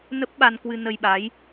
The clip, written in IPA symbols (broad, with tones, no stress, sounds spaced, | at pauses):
n ə˦˥ p̚ ɓ a˧ n k w ɨ˧ n ə˧ j ɓ a˨˦ j